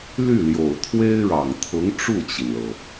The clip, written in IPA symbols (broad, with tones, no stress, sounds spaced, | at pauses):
l y˥˩ l j o˨˩ ʊ̯ t̪ʰ w e˥ ɪ̯ ɻ ɑ˨˩ ŋ t̪ʰ ʊ˧˥ ŋ ʈ͡ʂ u˥˩ t͡ɕ i˩ n l ɤ˩